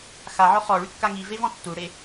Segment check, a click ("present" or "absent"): absent